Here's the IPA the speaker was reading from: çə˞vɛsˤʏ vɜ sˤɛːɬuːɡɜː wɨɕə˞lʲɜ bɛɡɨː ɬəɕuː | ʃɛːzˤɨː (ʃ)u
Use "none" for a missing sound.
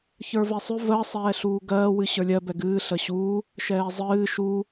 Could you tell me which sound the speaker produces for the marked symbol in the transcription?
ʃ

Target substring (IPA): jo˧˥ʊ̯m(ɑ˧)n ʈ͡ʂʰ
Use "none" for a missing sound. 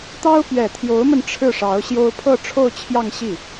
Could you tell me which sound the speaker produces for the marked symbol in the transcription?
ə˧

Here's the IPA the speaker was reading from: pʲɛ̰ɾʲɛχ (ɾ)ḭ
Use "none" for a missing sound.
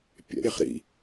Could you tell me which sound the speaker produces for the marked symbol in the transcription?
ɾ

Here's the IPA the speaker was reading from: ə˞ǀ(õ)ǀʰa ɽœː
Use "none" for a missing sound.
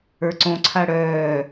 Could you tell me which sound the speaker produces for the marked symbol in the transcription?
õ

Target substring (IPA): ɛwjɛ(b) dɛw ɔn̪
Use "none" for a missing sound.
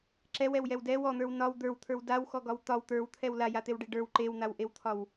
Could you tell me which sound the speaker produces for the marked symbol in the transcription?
w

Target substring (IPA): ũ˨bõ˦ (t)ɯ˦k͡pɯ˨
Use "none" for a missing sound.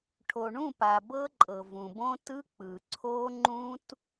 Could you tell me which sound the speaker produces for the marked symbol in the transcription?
t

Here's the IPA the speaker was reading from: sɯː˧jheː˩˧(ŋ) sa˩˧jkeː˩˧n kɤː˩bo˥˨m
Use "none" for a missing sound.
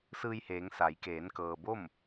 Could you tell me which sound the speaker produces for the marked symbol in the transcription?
ŋ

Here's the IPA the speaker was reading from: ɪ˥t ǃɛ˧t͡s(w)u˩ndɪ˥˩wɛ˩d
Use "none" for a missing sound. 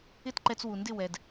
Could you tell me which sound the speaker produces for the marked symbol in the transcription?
w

